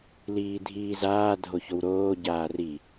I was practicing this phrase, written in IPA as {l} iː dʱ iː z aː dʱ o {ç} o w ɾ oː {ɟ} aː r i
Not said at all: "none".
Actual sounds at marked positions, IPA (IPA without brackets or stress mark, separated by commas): l, ç, ɟ